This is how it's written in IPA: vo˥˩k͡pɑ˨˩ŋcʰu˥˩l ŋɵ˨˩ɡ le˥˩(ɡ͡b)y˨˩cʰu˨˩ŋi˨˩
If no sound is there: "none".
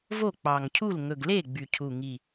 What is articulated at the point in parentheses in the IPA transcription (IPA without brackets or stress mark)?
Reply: ɡ͡b